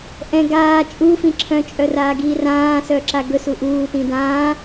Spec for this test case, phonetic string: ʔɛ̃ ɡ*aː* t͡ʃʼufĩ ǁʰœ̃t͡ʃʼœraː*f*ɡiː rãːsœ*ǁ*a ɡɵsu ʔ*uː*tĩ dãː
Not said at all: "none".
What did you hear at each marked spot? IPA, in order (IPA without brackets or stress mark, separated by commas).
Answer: aː, none, ǁ, uː